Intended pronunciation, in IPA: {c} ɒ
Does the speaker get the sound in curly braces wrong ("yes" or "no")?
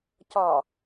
no